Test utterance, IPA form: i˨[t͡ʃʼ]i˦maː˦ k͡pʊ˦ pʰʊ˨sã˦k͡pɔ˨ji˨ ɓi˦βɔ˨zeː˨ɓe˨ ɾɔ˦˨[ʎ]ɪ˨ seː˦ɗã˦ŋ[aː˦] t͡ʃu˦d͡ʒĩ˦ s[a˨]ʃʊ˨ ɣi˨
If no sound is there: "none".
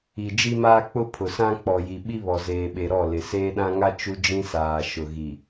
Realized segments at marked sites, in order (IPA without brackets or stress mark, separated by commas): d͡ʒ, l, a˦, aː˨